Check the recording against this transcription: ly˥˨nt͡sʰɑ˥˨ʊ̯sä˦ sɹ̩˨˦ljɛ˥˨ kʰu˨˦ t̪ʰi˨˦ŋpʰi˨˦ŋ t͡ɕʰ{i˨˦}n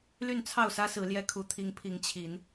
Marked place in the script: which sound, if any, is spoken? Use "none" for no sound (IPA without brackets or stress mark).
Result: i˨˦